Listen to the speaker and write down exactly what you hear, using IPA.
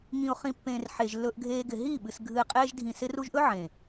ŋ ĩ˨ ʊ̯ χ ĩ˨ pː ẽː˨ r ħ e˨ ʒ lː ɵ˧ ʔ ɡʱ eː˧ ɡ ɪ˨ ɦ iː˦˨ ɓ ɨ˨ s ɡʱ ɨ˨ ɪ̯ qʼ eː˧ ʒ dʱ ĩ˨ s ɪ˧ r u˧ ʒ ʔ ɵ˦ ʕ ẽ˨

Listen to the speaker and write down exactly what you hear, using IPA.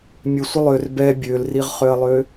mʲ ø sʷ ə lˠ ø r b ɛ bʲ ø l r i ʁ χ ø ɐ̯ lˠ ø

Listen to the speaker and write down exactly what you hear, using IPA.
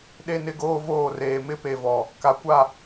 ɗ e˦ n ɪ˦ ɡ oː˦ v oː˦˨ r eː˨ m ɪ˦ p e˨ v ɔ˨ | k a˨ kʷ a˦˨

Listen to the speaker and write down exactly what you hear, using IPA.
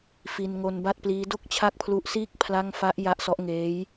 f i˧ n ŋ o˧ n b a˥˩ t̚ p l iː˦˥ d o˥˩ k̚ t͡ɕʰ a˥˩ k̚ pʰ l u˦˥ ʔ s iː˥˩ k̚ pʰ l a˥˩ ŋ f a˦˥ ʔ j a˦˥ ʔ s ɔ˦˥ ʔ ŋ eː˦˥ j

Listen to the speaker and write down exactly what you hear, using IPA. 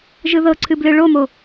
ʒ ɯ ð ɤ ǀʰ ɨ b l ɨ ɭ o m o

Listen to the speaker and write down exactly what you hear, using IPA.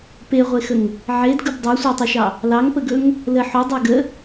p e ʁʷ e x ə ŋ | ʕ e d ɡ ɵ b dˤ e sʷ e tˤ ɵ ʃ ɑ | l ɑ ŋ p ə ɡ ɵ ŋ | l ə ħ o dˤ æ ɡ ə

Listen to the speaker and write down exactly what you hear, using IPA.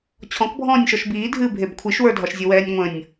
t͡ɕʰ ɔ̃ k bʱ ɔ̃ː nʲ ʃ ɔ ʃ b iː dʱ ɨː bʱ e b kʷʰ i ʃ w ə˞ dʱ ɒ ʃ zʲ ə w ɛː nʲ ŋʷ ə̃ nʲ

